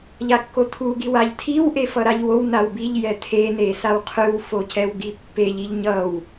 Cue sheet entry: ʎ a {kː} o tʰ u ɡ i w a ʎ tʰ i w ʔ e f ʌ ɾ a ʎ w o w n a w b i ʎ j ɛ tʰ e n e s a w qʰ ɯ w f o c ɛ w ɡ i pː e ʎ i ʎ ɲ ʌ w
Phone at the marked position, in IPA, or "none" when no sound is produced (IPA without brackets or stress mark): kː